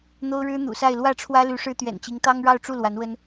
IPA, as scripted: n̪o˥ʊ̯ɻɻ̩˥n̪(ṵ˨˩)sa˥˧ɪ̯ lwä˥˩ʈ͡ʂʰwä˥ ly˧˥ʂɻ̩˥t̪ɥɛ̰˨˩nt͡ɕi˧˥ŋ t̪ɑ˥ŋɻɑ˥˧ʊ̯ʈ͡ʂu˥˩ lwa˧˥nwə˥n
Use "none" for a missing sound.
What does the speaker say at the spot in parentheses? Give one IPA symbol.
ṵ˨˩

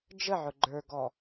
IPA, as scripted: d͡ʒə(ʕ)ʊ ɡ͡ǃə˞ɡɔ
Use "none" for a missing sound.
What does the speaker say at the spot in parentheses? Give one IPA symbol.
ʕ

